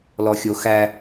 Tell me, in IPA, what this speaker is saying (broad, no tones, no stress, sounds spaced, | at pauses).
l ɔ xʲ o x æ